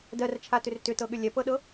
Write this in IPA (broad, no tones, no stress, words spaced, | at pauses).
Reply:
dɜrt͡ʃʰatʏr tʏtɤɠʏ lʲɛpɤɗɤ